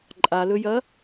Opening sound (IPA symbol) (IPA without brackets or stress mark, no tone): ǃʼ